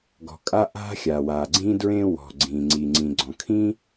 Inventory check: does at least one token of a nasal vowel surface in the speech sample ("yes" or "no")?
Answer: yes